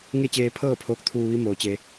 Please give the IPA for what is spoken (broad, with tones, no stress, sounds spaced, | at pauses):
ŋ e˥˨ t͡ɕ eː˧ pʰ ɤː˥˨ pʰ oː˧˥ k̚ t̪ʰ uː˧ ʋ i˧˥ m oː˩˧ t͡ɕ e˧